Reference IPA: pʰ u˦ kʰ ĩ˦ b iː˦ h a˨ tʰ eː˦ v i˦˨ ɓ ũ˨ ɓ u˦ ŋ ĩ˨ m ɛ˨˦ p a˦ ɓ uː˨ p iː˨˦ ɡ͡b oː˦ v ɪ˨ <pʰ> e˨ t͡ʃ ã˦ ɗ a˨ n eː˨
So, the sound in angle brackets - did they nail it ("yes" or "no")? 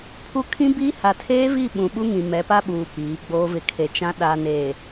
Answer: no